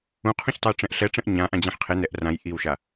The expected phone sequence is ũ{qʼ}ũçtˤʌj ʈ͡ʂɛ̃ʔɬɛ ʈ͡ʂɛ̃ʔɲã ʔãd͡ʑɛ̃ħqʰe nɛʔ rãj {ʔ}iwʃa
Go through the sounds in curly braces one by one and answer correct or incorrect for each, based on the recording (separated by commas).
incorrect, correct